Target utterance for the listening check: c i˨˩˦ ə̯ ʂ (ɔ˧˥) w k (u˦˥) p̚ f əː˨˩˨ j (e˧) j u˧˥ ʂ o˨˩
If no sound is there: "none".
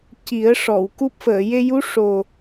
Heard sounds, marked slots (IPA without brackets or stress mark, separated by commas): ɔ˨˩˨, u˦˥, e˧